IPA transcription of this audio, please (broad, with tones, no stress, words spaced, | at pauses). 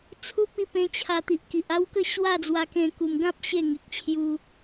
t͡sʰu˦p̚i˥˧pẽ˧ t͡ɕʰa˧t̪i˨ʔki˨ʔ a˦wkə˥˧ ɕwa˥˧d͡zwa˧kẽ˧ ku˨˩mɡã˦p̚ ɕe˥˧ŋe˨k̚t͡ɕʰju˧